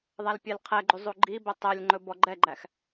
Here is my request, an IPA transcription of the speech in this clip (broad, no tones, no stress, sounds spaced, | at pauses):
ðˤ æ l pʲ ɛ l qʰ ɛ ɡ͡ǃ y zˤ u ɡ͡ǃ i b ɛ tˤ ɛ lʲ ŋ͡ǃ ɵ b ɔ ɡ͡ǃ ɛ ɡ͡ǃ æ x